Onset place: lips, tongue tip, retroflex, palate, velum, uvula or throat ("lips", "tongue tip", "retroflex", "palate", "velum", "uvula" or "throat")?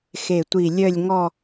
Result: velum